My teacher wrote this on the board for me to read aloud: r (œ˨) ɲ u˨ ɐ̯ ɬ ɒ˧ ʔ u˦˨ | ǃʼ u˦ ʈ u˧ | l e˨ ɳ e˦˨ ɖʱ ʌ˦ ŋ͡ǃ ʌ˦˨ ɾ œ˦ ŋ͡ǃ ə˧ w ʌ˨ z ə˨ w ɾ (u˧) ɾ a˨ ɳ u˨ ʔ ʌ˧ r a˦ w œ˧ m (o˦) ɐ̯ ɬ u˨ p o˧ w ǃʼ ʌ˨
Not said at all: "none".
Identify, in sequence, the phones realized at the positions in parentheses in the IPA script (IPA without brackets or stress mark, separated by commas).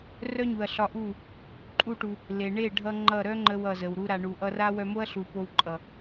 œ˦, u˧, o˦